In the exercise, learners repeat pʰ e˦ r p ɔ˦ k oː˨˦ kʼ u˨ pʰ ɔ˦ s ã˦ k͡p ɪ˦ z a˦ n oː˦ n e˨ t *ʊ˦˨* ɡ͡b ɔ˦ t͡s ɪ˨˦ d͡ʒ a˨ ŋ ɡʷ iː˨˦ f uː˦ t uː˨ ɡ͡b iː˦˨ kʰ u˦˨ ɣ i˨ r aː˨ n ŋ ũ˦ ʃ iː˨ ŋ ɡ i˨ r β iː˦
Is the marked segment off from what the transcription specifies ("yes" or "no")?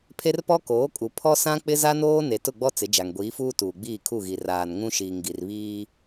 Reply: no